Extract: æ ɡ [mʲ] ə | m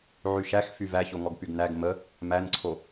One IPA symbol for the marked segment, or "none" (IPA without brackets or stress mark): m